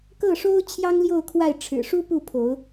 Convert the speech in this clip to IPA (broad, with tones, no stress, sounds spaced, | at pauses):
k ɤ˥˨ ʂ o˦ ʊ̯ t͡ɕʰ j ɑ˦ ŋ l j o˥˨ ʊ̯ kʰ w a˥˨ ɪ̯ ʈ͡ʂʰ ɻ̩˨˩ ʂ u˦ p u˥˨ pʰ o˨˦ ʊ̯